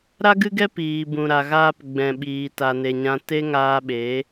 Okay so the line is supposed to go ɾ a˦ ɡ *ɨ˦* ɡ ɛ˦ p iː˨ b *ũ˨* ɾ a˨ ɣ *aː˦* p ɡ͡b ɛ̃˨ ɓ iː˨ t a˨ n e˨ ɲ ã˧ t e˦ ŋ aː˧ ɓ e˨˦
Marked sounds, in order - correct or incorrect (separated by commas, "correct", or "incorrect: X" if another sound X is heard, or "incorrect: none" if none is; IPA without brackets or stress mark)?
correct, correct, incorrect: aː˧